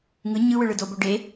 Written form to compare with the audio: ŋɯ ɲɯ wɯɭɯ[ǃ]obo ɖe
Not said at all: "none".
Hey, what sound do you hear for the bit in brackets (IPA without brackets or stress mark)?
d